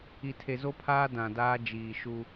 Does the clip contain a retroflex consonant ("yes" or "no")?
no